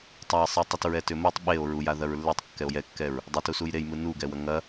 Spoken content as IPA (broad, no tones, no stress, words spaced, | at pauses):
tˤae̯sˤɯtˤʏtɹɛ tʏmutˤ ɓeo̯ ɹuja ðɐɹlːetˤkːɛo̯ jɛkːɛɹ | dˤɘtu sujɾej mɯnuɡɛwɐ ŋɐ